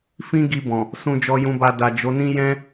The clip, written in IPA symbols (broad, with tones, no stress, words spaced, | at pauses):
fĩ˦ɡi˧bɔ̃˨ | sũ˨d͡ʒɔ˨jũ˨ba˨ da˨d͡ʒo˨˦nĩ˦ jɛ̃˦